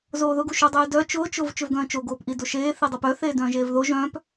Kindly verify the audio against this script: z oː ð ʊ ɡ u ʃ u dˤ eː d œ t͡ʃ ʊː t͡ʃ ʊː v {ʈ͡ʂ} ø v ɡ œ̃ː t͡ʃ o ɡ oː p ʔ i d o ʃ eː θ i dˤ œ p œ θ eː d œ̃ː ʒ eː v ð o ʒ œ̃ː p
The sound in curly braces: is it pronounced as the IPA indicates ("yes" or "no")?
no